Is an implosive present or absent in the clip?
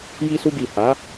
absent